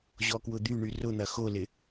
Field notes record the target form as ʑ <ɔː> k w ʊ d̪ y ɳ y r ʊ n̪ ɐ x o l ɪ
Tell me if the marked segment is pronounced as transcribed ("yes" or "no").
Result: no